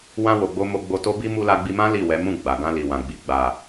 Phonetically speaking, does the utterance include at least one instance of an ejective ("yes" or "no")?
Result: no